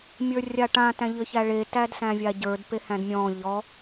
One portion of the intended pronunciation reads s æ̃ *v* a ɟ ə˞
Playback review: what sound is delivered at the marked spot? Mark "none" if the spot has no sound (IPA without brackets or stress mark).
vʲ